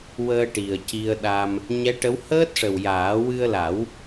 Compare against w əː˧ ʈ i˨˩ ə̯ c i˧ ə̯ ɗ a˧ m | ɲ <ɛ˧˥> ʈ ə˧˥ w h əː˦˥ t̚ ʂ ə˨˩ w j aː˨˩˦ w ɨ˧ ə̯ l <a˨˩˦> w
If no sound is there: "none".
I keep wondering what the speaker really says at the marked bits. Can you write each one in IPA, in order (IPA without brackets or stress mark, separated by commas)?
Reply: ɛ˧˥, a˨˩˦